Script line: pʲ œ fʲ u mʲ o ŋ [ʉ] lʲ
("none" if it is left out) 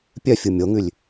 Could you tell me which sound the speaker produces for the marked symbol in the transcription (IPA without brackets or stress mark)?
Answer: ʉ